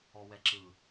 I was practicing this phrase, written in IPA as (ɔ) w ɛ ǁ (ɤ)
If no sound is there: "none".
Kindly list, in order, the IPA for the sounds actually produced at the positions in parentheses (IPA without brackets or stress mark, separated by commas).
ɔ, ɯ